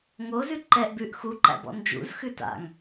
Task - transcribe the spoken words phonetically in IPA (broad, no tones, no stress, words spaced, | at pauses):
ŋozʉ ǃɛʔbʉʔ xuǃæ̰b ɔ̰nd͡ʒṵzxʉ ta̰ŋ